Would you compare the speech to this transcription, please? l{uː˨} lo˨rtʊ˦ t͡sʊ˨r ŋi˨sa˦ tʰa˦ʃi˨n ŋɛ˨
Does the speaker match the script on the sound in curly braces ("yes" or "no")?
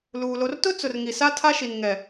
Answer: yes